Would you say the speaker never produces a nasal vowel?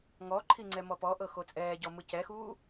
yes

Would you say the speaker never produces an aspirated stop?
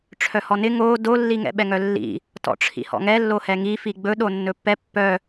no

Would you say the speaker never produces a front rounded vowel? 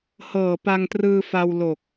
yes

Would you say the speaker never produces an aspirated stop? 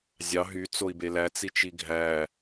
yes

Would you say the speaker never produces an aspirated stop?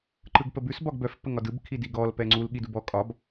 no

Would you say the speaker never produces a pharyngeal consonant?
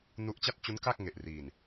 yes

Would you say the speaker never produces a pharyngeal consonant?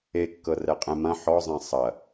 no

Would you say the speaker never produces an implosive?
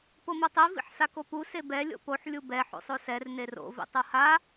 yes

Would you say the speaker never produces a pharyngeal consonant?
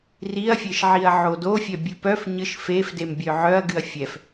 no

